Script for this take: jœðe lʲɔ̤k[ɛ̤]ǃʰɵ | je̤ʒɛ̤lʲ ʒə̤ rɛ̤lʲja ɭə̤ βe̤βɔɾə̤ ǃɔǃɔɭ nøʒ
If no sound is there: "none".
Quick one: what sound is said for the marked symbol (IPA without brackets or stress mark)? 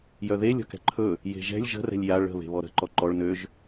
ɛ̤